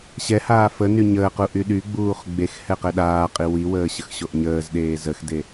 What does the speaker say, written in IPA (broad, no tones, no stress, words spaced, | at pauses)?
ɕɛhaː fə nyɲəːqu ʔyɗyɡ͡buːχ ɡ͡bex hɛqɛɗaːqʼi wiwəː ɕəxɕoʔɲəːzɗeː zəxde